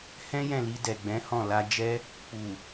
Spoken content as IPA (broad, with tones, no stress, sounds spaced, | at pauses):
h ɛ̃˦ j ɛ̃˦˨ l i˧ d ɛ˨ ɡ͡b ɛ̃˨˦ h ɔ̃˦˨ l a˧ d͡ʒ ɛ˦ | k͡p u˨